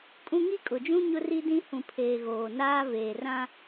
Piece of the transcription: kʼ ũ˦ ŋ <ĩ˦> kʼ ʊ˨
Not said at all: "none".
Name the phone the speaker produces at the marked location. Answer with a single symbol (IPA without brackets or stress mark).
i˦